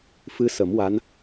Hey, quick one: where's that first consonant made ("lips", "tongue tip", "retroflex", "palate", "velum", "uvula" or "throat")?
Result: lips